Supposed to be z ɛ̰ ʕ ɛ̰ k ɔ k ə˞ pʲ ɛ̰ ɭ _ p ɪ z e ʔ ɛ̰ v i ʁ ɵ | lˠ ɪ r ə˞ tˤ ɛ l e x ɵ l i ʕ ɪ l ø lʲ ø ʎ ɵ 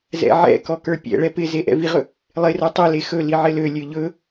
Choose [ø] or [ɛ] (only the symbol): ɛ